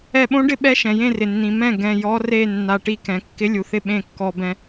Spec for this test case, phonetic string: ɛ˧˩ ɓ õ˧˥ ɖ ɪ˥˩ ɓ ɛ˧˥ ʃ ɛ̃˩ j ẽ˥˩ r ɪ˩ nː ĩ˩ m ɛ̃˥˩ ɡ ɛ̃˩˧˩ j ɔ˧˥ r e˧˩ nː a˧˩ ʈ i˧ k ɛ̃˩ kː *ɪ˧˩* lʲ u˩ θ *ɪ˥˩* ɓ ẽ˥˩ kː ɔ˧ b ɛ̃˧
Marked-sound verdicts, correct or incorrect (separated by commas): incorrect, correct